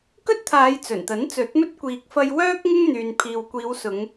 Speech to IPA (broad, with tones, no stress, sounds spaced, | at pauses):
k ɵ˥ t̚ t̪ʰ aː˨˧ j t͡s ɵ˨˩ n t̪ ɐ˨˥ n t͡s ɵ˨˥ t̚ m ɵ˥ t̚ kʷ iː˨ k̚ f ɐ˧ j w œː˥ k̚ ŋ ɪ˥ ŋ n̪ yː˨ n pʰ iː˨ w kʷ iː˨˧ w s ʊ˨˧ ŋ